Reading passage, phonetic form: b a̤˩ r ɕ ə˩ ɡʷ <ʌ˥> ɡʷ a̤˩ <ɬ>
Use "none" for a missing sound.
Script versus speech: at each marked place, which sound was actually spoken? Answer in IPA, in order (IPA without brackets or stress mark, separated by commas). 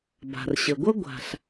ʌ˥, ɬ